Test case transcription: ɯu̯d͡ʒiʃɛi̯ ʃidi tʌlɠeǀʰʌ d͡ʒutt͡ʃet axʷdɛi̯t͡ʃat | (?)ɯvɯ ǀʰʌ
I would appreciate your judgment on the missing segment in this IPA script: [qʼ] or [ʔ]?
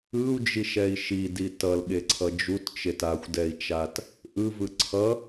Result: ʔ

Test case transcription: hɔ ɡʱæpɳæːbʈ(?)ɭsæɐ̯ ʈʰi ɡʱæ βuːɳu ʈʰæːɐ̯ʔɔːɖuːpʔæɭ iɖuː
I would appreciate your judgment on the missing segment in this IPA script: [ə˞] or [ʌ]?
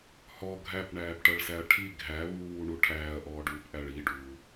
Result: ʌ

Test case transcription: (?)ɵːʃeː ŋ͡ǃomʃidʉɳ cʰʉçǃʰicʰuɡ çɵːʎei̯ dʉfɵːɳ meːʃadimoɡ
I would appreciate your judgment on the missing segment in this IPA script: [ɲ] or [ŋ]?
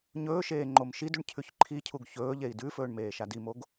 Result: ɲ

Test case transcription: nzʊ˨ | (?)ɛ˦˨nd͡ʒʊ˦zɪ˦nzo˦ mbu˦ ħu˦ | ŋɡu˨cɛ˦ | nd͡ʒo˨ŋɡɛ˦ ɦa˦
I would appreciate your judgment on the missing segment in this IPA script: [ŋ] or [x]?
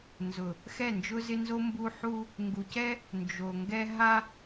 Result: x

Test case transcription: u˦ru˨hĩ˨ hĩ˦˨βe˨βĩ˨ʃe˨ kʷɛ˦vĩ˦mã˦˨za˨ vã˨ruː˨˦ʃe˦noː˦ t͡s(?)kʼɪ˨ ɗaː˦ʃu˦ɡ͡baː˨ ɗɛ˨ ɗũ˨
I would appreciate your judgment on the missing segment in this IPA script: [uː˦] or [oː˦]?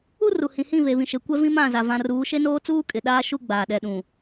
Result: uː˦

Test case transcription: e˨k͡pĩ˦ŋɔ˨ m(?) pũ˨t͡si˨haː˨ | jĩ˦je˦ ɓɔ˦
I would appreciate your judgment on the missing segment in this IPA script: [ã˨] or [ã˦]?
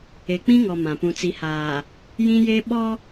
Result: ã˨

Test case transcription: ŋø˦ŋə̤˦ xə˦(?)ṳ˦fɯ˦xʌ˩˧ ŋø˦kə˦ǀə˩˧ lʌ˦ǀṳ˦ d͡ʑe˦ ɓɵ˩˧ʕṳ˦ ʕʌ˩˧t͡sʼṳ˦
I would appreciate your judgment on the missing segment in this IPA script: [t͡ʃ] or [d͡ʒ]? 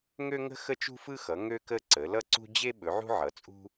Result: t͡ʃ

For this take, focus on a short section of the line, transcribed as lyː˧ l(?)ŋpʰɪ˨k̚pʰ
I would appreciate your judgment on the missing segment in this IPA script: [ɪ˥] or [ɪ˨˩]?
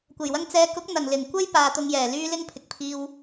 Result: ɪ˥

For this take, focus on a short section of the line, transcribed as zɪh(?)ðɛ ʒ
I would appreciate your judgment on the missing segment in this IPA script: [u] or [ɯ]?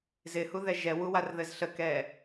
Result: u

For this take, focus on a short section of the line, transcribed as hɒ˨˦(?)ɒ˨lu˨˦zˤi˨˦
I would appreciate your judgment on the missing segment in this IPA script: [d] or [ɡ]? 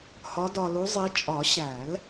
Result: d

